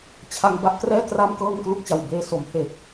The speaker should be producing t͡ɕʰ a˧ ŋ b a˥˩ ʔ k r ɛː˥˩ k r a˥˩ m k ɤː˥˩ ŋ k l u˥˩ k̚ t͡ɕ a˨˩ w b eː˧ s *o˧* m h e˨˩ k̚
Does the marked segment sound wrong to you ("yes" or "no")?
yes